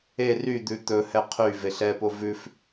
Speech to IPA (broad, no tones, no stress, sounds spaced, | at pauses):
e r y d̪ ʉ t̪ ɵ h ɛ qʰ y v e ɬ ɛ p o v ʉ f